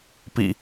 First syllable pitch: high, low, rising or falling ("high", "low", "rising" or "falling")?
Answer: low